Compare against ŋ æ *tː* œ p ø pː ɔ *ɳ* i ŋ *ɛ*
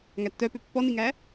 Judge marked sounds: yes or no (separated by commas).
yes, no, no